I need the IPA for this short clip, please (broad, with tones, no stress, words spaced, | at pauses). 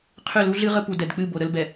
qʰʏ˦˨lu˦ɮɨ˦ʁə˦ pu˨dɛ˨dk͡pɨ˦˨ bo˨ɾə˦lbɛ˨